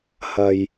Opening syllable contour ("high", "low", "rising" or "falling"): low